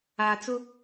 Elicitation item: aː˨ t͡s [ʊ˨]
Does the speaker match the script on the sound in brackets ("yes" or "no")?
no